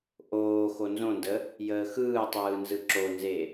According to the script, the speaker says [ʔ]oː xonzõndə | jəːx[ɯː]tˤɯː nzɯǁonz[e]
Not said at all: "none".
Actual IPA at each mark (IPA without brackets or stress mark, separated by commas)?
ʔ, ɯː, e